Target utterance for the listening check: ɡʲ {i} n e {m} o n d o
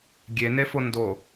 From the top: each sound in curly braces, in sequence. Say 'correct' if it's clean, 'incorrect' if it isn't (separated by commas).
incorrect, incorrect